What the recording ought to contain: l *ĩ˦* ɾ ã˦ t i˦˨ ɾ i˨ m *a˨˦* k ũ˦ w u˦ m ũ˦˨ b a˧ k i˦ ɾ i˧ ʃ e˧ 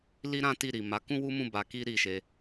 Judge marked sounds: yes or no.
no, yes

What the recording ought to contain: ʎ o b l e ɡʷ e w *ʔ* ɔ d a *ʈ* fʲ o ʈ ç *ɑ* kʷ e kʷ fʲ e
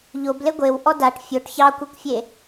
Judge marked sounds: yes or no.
yes, yes, yes

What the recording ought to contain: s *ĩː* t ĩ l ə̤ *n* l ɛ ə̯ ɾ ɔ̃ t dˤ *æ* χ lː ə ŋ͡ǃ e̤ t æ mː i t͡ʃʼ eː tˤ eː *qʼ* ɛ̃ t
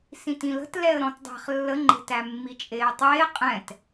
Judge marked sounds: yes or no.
no, no, no, yes

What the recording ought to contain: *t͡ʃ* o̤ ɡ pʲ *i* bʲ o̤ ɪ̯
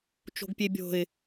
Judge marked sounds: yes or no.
yes, no

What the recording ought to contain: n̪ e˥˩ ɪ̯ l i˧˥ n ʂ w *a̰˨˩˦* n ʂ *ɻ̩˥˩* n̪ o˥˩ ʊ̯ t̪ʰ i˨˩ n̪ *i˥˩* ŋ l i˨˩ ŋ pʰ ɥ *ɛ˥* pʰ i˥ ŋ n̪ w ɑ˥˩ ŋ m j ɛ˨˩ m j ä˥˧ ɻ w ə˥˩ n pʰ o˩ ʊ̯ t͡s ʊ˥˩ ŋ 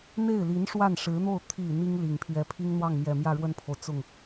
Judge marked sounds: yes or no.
no, no, no, no

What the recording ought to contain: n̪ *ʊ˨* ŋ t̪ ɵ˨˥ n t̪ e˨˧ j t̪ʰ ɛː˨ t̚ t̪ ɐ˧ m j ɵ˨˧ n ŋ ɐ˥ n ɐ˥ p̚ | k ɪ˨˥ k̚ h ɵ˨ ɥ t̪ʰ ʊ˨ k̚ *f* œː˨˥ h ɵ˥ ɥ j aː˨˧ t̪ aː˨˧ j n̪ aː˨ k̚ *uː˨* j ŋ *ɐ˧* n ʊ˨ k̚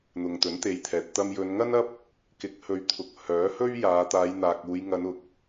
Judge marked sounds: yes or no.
yes, no, no, no

